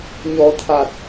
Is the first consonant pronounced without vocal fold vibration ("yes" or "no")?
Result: no